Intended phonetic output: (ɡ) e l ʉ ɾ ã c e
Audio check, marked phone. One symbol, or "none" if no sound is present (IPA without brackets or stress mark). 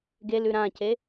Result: ɡ